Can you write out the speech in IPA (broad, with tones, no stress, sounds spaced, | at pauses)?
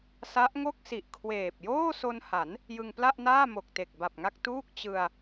s a˦˥ ʔ ŋ o˥˩ k̚ s i˨˩ ʔ kʰ w eː˨˩ p̚ j oː˥˩ s o˧ n h a˩˦ n | j ɯ˧ ŋ p l a˥˩ ʔ n aː˥˩ m o˨˩ k̚ t e˨˩ k̚ b a˨˩ p̚ ŋ a˥˩ k̚ t uː˥˩ k̚ t͡ɕ ɯ˧ a̯